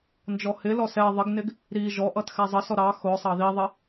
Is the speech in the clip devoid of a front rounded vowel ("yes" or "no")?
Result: yes